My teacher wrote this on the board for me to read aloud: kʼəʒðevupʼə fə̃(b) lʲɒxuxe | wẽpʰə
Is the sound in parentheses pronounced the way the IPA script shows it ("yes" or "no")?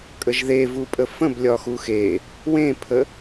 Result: yes